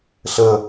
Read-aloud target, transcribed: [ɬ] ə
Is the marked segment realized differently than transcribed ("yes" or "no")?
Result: no